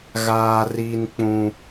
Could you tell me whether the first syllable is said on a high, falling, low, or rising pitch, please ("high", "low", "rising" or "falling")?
high